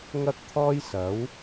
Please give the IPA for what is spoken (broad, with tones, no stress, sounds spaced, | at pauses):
ŋ ɐ˥ k̚ t̪ʰ ɔː˥ j s ɐ˨˥ w